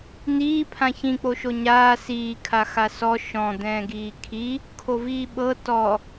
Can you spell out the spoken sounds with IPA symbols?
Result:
n̪iː pʰãçĩk͡poʃo ɲaː siːkʰa xasɔ ʃɔ̃ d̪ɛ̃ːɡiːkʰi | kʰoviːɓɤ tɔ

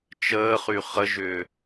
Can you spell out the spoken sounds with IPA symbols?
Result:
t͡ʃəːχy χəʒʏː

